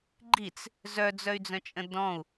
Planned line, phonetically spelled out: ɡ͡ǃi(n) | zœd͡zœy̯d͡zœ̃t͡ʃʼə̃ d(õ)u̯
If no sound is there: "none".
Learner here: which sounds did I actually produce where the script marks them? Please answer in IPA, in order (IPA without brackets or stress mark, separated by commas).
t͡s, ɔ̃